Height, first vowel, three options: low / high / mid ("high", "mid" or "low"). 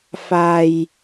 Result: low